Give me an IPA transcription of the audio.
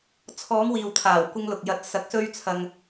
t͡sʰ ɔː˨˧ ŋ w iː˨ w t̪ʰ aː˨˩ w kʷ ɪ˧ ŋ l ʊ˨ k̚ j ɐ˨˥ t̚ s ɐ˨˥ k̚ s ɵ˧ ɥ t͡sʰ ɐ˧ ŋ

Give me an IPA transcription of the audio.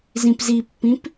z ĩ p z i pː ĩ p

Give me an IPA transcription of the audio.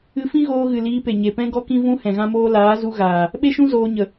ɨ˧ f ĩ˦ ɣ oː˧ ɣ ɨ˨ l iː˧ p e˨ ɲ e˨ p ɛ̃˦ ɡ ɔ˦ k ĩ˦ v ũ˦ h ɛ̃˨ ɣ ã˦ m oː˦ l aː˨˦ z u˧ ɣ aː˨ | ɓ e˦ ʃ ũ˦ z oː˧ ɲ ə˨

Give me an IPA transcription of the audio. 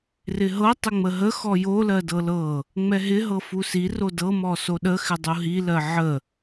r ɪ ɦ ɤ tˤ ɪ ŋ͡m ə ɦ ə x ɔ j o l ɜ d ɤ l ɤ | ŋ͡m ɛ ɦ ɪ ɦ ɤ f u s i r o d ɤ m ɔ s o ɗ ə x ɪ dˤ u ɦ i l ɜ ʕ ə

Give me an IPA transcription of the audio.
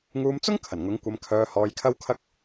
ŋ uː˧ m t͡s ʊ˥ ŋ kʰ ɐ˨˩ n ŋ ʊ˨˥ ŋ kʷ ɐ˧ m kʰ œː˧ h ɔː˧ j kʰ ɐ˥ w kʰ ɐ˥ k̚

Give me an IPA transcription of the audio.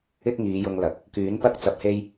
ɪ˥ k̚ ŋ iː˨˧ j ʊ˧ ŋ l ɐ˨˥ k̚ | k yː˨˥ n p ɐ˥ k̚ t͡s ɐ˧ p̚ h e˥ j

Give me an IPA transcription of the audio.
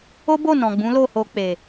o˦ b o˦˨ n ɔ̃˨ ɡ͡b ũ˨˦ l o˦˨ h o˧ k͡p e˨

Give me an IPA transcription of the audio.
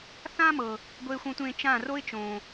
θ ã˦ m ɤ˨ | ɡʷ eː˧ xʷ ɔ̃˧ tʷ ẽː˧ t͡ʃ ã˦˨ r o˦ ɪ̯ t͡ʃ õː˨

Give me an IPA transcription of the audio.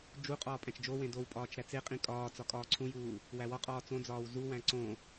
d͡ʒ u qʼ ɒː pʼ æ̃ t͡ʃ d͡ʒ o w ẽ d o w pʼ ɒː t͡ʃ ɾ æ t͡s e qʼ ĩ kʼ ɒː t͡s ɒ kʼ ɒː ǀʰ ũ j uː | w æ w ɒ qʼ ɒː t͡s õ d͡z ɒː w z u w æ̃ ǀ õ

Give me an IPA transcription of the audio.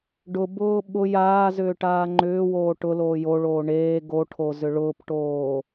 ɖ ʊ b ʊː ɓ ʊ j aː z ʏː ʈ aː ŋ͡ǃ ʏː w oː ʈ ʊ l oː j o ɭ oː ɳ eː ɡ o ʈʰ o z ʏ ɭ ʊː p ʈ oː

